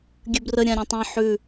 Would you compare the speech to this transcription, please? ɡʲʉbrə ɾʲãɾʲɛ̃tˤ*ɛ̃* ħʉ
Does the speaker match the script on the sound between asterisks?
yes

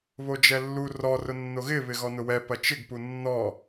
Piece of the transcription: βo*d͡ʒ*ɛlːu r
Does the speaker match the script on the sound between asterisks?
yes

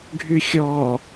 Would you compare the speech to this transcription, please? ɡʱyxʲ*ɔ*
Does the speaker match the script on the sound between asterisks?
yes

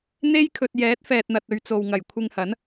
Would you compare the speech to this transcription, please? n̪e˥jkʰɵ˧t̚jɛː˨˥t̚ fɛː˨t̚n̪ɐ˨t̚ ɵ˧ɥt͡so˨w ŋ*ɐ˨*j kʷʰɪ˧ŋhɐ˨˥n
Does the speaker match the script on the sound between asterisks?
no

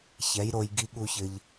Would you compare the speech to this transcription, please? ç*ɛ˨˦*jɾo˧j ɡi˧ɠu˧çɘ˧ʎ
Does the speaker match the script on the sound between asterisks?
yes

